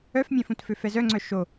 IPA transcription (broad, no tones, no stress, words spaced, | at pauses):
œfmʲɛ̃fũtfø fɛzœŋ͡ǀœ ʃo